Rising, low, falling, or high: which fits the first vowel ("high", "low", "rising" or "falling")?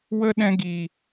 high